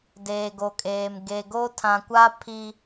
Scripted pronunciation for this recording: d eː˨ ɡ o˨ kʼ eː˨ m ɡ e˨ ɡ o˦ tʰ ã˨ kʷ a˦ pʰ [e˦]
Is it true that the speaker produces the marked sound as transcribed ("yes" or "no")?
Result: no